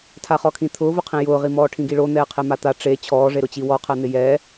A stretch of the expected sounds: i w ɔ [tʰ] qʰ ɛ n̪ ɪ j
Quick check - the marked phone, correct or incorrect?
incorrect